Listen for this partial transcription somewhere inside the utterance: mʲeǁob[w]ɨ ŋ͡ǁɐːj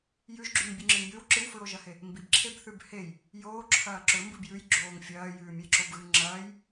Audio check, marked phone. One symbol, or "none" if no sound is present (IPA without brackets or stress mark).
ɣ